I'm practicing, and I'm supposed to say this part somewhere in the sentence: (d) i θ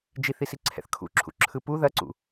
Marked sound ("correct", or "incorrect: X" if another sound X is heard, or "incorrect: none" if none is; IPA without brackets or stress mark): incorrect: d͡ʒ